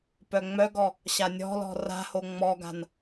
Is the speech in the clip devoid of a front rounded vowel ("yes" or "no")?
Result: no